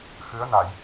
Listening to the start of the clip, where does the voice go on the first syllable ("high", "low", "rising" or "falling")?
rising